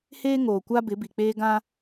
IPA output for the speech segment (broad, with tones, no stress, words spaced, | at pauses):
heː˦ŋoː˨kʷa˦ bɪ˨˦bi˨k͡peː˦ ɡã˦